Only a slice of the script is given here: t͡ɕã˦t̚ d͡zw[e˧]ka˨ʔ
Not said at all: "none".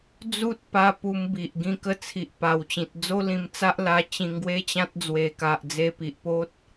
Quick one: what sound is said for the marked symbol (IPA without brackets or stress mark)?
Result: e˨˩